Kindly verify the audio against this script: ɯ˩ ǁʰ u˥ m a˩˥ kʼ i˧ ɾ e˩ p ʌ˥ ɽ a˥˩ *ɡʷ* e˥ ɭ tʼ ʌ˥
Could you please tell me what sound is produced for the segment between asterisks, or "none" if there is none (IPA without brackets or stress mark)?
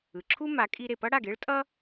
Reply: ɡ